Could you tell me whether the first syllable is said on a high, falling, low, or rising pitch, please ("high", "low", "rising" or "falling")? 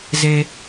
low